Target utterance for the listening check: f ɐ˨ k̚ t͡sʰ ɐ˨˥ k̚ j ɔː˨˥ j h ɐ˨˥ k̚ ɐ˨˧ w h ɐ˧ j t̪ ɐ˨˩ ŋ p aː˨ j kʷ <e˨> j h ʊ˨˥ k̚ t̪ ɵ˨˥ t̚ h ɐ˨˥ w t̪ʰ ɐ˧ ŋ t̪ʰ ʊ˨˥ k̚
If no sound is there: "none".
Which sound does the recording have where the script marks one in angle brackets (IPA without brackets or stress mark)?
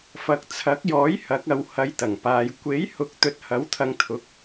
e˨˥